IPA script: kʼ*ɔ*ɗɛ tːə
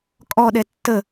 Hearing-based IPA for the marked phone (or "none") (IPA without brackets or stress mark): ɔ